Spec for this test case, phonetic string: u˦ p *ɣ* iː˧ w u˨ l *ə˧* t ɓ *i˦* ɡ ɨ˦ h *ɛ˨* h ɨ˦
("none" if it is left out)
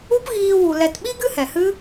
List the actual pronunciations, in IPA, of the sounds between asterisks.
ɣ, ɛ˧, i˦, ɛ˨

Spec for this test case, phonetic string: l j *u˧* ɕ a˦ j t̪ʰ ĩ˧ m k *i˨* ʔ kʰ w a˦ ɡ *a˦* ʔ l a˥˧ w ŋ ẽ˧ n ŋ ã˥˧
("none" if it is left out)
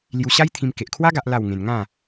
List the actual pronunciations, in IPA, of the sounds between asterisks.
u˧, e˨, a˦

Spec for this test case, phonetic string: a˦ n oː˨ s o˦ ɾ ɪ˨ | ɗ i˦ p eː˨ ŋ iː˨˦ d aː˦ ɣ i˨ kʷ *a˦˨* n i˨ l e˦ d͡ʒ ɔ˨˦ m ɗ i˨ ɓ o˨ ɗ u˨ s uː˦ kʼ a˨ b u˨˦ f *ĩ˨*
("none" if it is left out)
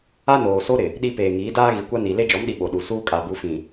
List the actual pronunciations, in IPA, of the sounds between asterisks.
a˦, ĩ˨

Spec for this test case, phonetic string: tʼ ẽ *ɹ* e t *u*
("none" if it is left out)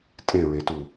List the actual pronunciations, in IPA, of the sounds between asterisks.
ɹ, u

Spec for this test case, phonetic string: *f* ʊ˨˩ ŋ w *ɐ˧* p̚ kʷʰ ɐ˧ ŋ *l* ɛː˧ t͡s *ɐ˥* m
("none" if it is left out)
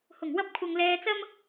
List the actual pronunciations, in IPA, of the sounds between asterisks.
h, ɐ˧, l, ɐ˥

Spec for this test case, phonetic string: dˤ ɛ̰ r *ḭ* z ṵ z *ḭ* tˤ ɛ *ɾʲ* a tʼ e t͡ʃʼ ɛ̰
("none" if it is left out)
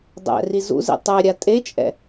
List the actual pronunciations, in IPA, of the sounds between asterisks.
i, ḭ, ɾʲ

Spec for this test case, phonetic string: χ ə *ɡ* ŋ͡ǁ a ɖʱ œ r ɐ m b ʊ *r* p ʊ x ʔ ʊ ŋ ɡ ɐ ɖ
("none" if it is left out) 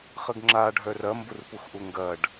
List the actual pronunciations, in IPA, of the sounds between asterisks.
ɡ, r

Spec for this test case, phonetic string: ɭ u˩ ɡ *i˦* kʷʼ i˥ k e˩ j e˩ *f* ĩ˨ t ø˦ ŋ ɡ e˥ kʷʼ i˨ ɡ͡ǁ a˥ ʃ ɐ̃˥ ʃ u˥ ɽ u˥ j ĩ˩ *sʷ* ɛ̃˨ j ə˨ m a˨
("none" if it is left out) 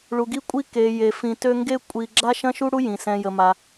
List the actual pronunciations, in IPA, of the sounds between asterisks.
i˦, f, s

